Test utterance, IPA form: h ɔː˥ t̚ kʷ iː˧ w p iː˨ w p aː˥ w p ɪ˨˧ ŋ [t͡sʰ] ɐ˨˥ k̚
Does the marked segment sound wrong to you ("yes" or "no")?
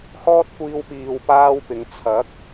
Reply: no